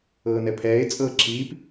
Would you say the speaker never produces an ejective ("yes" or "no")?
no